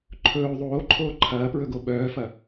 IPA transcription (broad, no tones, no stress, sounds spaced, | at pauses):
ǃʰ ɵː ðˤ oː ǃʰ oː ǃʰ ɐː p ɹ ɵ ɡ o ɓ œː f ɐ